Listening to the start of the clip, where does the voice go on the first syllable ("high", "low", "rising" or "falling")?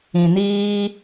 low